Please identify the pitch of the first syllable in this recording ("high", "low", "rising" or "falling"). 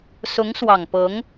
rising